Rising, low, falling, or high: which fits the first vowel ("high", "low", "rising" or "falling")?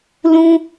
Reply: high